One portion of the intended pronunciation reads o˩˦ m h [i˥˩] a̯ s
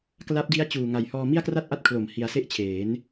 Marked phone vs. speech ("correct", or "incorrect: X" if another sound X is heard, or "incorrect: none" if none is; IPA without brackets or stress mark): incorrect: i˧